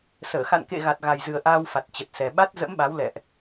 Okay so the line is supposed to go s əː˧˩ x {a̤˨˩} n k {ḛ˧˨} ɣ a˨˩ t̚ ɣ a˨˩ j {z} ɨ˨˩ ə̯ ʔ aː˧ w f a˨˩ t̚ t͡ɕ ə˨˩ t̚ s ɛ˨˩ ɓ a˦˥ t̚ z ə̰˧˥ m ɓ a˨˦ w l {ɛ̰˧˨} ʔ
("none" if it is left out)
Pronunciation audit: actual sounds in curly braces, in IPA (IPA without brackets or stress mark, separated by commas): a̰˧˨, ḛ˧˨, z, ɛ̰˧˨